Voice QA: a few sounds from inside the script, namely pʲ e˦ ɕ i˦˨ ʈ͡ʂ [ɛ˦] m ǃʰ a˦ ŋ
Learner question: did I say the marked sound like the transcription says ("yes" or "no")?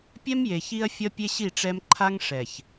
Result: yes